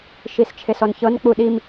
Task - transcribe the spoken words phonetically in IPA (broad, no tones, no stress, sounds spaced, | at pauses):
ʃ i s t͡ʃʰ e s ɔ n ç ɤ n k͡p u ɗ i m